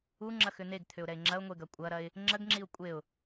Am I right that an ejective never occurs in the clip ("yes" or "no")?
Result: no